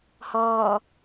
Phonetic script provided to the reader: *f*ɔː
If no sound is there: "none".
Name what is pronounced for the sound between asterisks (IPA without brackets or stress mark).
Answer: h